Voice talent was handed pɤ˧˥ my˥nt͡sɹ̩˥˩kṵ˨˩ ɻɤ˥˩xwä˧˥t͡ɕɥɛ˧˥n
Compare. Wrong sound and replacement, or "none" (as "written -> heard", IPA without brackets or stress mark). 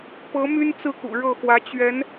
none